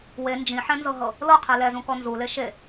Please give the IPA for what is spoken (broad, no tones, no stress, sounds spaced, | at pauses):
w e n d͡ʒ ĩ ħ ɛ̃ n z ɤ ɦ ɤ | l ɤ qʰ ɛ l ɛ z ũ k ɔ n z u l e ʃ e